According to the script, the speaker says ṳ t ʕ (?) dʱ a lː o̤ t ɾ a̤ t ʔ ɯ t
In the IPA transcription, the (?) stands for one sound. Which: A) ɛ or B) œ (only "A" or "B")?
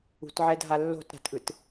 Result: A